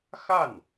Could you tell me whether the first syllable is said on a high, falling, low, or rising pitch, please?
falling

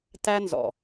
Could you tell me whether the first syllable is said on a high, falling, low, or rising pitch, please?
high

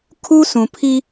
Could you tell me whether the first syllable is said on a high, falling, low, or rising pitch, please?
high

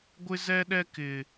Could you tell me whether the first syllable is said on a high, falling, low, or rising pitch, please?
high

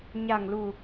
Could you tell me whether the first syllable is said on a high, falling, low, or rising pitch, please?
low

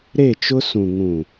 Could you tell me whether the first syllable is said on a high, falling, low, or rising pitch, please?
falling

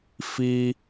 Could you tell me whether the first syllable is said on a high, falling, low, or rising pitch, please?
high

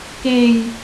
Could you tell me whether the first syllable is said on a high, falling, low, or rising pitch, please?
falling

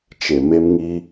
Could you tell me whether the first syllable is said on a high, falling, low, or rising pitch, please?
low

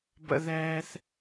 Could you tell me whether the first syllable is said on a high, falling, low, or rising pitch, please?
high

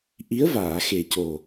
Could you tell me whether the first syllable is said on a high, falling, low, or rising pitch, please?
rising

